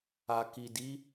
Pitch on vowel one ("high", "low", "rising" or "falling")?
low